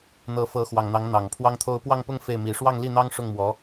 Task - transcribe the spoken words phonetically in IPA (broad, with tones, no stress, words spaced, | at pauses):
n̪ɤ˧˥fɤ˧˥xwɑ˨˩ŋn̪ɑ˧˥ŋ n̪ɑ˨˩ŋpʰwɑ˥ŋt̪ʰo˥ʊ̯ pwɑ˥˧ŋpʊ˥˧ŋ fe˥˩ɪ̯mi˧˥ ʂwɑ˥˧ŋli˥˩n̪ɑ˥ŋ ʂʊ˥˩ŋmwɔ˧˥